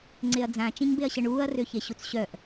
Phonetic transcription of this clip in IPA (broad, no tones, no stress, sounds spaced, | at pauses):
ŋ͡ǀ e ɐ̯ d͡z ã t͡ʃ ĩ ɲ b e ɐ̯ ɕ ə ɳ uː ɐ̯ r ø ç e ɕ u t͡s ɕ œ ʔ